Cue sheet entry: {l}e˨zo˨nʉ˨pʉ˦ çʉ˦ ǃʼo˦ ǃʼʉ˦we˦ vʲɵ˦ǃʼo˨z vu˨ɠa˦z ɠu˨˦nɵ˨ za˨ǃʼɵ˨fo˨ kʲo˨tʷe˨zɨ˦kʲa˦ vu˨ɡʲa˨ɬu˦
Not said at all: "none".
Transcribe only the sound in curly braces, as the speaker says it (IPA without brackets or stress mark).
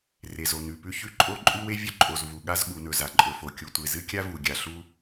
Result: r